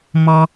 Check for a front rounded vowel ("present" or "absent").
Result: absent